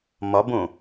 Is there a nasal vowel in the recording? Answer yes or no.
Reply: yes